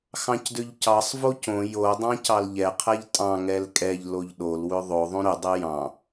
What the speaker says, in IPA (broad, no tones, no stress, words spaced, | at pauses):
xɑ̃cdʏʎcɑsˤ vocõ jodˤɑ̃ cɑlʎɛ qʰɛʎtʼɑ̃ ŋɛlkʼɛʎ loʎɗol wʏðˤo ðˤõɾʏdˤɛ jɑ̃